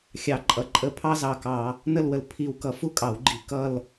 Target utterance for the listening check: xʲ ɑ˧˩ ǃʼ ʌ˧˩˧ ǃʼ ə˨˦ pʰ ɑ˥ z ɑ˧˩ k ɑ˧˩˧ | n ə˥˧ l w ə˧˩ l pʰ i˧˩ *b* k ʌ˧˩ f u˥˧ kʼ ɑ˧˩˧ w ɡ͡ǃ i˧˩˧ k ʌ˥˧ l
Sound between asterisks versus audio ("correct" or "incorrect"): incorrect